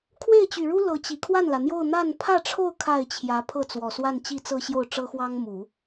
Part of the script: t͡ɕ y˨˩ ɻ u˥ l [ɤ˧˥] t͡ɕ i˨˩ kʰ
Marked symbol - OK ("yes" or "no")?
yes